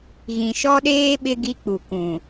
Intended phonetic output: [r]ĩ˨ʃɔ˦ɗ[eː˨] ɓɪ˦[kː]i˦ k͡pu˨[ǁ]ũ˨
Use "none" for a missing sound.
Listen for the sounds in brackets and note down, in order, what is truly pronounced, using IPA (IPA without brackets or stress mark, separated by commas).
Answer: ɣ, eː˦, ɡ, k